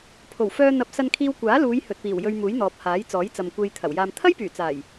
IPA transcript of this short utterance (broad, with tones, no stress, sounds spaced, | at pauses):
pʰ o˨˩ w f œː˧ n̪ ɐ˨˥ p̚ s ɐ˧ n kʰ iː˧ w kʷ aː˨˥ l uː˨˧ j h ɵ˨ t̚ p iː˨˩ w j ɵ˧ ɥ m uː˨˥ j n̪ ɔː˨ p̚ h aː˨˥ j t͡s ɔː˨˥ j t͡s ɐ˨ m kʷ e˧ j t̪ʰ ɐ˨˩ w j aː˧ m t̪ʰ ɐ˥ j p yː˨˩ t͡s aː˨˩ j